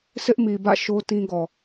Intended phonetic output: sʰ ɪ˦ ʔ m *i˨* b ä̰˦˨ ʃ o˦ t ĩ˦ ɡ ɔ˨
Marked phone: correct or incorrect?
correct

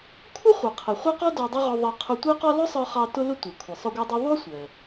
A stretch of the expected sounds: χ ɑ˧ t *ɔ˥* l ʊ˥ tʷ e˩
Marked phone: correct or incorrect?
incorrect: ʊ˥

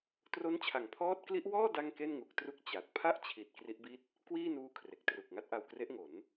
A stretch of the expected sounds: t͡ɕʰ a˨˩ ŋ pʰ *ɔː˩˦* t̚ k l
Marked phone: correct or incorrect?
incorrect: ɔː˦˥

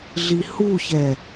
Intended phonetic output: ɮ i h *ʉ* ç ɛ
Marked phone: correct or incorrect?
incorrect: u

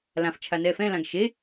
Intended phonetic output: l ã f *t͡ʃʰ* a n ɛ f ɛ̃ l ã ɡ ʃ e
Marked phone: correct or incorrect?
correct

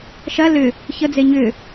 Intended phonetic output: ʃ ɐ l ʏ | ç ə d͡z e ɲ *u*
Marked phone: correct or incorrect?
incorrect: ʏ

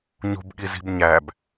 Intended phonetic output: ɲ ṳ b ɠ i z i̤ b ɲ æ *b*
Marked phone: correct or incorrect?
correct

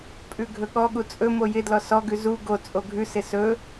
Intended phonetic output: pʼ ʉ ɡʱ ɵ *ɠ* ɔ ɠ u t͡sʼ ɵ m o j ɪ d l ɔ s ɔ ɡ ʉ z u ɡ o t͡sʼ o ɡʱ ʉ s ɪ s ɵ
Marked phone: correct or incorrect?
correct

